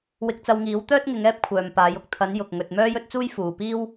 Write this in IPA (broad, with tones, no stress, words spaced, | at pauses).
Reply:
wɪ˧k̚t͡sɐ˧wŋiː˨˥w t̪œː˥t̚ŋɪ˨˧ŋ ɛː˥p̚kʷʰœː˨m paː˨˧jʊ˨k̚ t̪ʰɐ˨˧njʊ˨k̚ ŋɵ˧t̚ mœː˥jɵ˥t̚t͡suː˥j fuː˨piː˥w